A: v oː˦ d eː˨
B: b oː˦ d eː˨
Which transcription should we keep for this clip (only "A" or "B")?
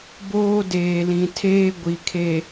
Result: B